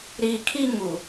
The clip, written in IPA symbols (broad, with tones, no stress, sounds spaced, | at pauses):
ɾ iː˨ kʰ i˦ ŋ u˨